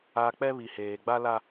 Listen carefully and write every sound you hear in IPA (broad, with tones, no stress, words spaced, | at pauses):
a˨ k͡pɛ˦βi˨heː˨ɡ͡ba˦ la˦